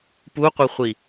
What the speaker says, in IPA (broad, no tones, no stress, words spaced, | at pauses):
puqʷʌχʷi